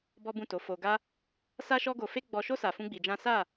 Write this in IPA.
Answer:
b ɔ˦ b ũ˦˨ t o˨˦ f o˧ ɡ a˦ | s a˦ ʃ ɔ˦ ɡ o˧ f e˦ ɡ͡b ɔ˧ ʃ o˦ s a˧ f ũ˦ ɡ͡b i˧ d͡ʒ ã˦ s a˦˨

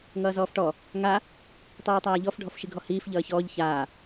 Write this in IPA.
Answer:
ŋ ʌː z ɔː f ʈ ɔ | ŋ a | tˤ iː tˤ aː ʎ ɔ f ɖʱ ɔ f ʃ i ɡʱ ɔ h iː f ʎ ʌː ç ɔː ʎ ç aː

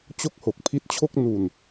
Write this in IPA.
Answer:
t͡ɕ o˥˩ k̚ h o˨˩ k̚ pʰ i˦˥ t̚ t͡ɕʰ o˥˩ k̚ n u˨˩ n

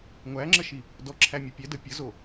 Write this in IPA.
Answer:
ŋʷ æ ŋ͡ǁ ə ʃ i | d ɔ ǁʰ æ mʲ u pʲ ɛ d ə pʲ ə z o

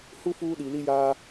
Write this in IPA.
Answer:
h u˦ f uː˦ ɗ i˨ l i˦ j aː˦

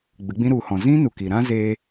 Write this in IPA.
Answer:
ɡ͡b ɨ˨˦ ɡ͡b ĩ˦ ɾ u˨ h ɔ̃˨ z ĩ˦ n u˨ k i˨ ɾ ã˦ z eː˧

